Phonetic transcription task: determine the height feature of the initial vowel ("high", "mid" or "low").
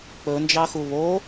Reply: mid